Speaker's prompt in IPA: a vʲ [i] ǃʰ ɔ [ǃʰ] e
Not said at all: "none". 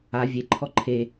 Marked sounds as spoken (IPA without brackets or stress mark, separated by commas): e, ǃʰ